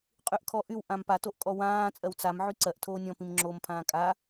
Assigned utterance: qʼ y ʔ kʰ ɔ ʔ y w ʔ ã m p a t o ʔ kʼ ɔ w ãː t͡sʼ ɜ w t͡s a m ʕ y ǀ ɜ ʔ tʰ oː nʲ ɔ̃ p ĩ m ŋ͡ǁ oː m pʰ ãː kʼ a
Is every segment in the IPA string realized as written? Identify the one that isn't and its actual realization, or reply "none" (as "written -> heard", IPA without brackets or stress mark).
none